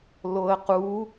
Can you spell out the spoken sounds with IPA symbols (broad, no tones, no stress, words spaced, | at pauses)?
loə̯qu